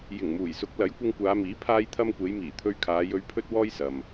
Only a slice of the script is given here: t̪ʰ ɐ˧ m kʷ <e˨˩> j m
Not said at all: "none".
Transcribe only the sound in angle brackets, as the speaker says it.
e˨˧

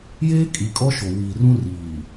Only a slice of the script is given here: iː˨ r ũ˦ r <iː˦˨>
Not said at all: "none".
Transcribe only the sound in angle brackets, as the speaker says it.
iː˨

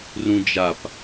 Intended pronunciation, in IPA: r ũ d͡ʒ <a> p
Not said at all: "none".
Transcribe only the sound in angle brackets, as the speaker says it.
a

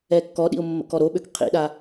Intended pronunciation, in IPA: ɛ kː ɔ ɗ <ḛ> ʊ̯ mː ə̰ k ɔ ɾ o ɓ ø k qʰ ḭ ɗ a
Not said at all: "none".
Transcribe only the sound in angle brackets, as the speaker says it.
ḭ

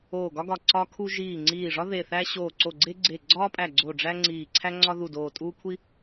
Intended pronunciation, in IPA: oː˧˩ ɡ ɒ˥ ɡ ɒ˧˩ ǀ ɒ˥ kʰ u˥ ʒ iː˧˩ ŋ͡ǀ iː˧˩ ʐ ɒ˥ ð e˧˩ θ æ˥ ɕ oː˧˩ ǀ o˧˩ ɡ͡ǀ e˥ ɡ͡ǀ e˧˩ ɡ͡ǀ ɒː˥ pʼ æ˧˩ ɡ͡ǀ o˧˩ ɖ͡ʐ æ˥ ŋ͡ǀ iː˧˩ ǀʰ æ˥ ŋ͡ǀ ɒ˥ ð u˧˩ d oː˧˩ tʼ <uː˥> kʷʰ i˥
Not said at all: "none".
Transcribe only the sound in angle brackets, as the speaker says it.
uː˥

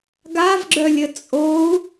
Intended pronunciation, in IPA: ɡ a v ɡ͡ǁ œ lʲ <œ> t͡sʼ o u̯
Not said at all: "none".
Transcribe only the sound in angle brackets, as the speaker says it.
ə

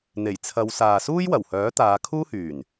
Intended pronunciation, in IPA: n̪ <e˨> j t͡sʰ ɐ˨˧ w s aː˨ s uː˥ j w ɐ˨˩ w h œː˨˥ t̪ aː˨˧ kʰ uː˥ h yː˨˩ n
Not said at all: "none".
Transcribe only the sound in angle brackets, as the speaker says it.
e˨˩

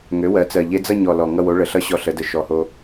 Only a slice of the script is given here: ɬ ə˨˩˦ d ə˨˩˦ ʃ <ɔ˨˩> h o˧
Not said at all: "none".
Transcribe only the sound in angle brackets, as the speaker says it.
ɔ˨˩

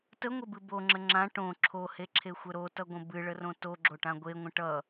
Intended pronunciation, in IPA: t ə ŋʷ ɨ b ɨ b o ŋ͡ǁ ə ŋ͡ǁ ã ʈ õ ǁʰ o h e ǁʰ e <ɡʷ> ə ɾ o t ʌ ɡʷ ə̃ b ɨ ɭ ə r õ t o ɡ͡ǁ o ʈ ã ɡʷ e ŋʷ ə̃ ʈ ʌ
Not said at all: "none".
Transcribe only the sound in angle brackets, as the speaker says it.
xʷ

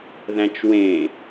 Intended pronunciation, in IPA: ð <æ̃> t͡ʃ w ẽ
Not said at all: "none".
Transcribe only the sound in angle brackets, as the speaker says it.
æ̃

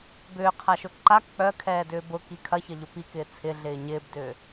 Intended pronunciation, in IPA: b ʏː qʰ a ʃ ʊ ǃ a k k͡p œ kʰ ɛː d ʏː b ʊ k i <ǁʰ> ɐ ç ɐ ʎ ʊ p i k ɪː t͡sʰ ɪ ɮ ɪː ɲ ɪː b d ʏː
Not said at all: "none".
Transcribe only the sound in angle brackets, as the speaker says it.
kʰ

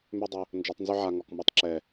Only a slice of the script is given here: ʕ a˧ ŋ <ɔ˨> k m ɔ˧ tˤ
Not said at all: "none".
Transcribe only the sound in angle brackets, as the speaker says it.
ɔ˨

